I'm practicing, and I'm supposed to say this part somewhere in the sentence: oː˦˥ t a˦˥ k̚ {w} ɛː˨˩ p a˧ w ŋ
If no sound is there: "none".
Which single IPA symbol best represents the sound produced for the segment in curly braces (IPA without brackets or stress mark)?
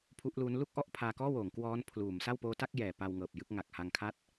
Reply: j